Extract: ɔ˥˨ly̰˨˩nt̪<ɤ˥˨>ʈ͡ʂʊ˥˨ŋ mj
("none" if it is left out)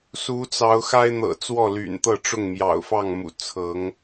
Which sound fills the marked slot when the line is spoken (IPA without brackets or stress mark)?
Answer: ɤ˥˨